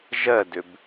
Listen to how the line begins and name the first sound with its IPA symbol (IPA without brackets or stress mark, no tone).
ʒ